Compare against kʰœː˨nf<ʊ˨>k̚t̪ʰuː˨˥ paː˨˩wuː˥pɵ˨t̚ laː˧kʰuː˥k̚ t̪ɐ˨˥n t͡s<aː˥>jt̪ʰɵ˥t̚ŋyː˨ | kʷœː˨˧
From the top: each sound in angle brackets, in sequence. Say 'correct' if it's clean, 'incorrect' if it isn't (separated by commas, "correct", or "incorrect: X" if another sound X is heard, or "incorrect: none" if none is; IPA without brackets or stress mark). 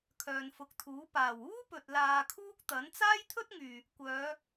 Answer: incorrect: ʊ˨˥, correct